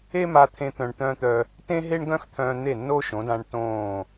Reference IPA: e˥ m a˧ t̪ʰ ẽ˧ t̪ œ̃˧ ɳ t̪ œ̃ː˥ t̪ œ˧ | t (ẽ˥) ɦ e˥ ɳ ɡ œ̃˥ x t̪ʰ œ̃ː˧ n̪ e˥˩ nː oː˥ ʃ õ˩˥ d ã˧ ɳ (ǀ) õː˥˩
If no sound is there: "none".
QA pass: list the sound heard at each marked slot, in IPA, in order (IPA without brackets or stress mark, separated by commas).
ẽ˥, t